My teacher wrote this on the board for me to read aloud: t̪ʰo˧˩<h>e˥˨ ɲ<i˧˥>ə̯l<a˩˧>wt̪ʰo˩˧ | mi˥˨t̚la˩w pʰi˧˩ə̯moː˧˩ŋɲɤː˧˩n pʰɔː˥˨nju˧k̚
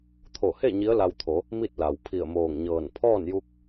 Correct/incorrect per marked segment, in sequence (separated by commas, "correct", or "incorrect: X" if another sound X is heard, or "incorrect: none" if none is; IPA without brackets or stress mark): correct, correct, incorrect: a˧